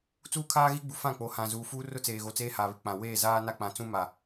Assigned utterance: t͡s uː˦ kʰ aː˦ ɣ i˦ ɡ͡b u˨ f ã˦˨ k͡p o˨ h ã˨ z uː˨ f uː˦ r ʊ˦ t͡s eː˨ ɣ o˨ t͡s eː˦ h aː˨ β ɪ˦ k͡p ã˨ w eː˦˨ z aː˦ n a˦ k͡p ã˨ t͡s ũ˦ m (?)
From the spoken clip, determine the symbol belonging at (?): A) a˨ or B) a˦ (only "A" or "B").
A